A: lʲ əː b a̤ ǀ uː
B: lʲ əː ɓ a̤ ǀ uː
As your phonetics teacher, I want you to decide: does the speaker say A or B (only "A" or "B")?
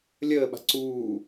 B